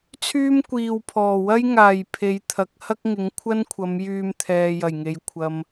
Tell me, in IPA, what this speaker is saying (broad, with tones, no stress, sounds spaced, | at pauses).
t͡sʰ yː˥ m kʷ iː˨ w pʰ ɔː˨˩ w ɐ˥ j ŋ aː˨˩ j pʰ e˨˧ j t̪ʰ ɐ˨ k̚ h ɐ˥ k̚ ŋ ɪ˨˧ ŋ kʷʰ ɐ˥ n kʷʰ ɐ˨˧ m j yː˧ m t̪ʰ ɛː˨ j ɐ˨˩ j ŋ e˨ j kʷʰ ɐ˨ m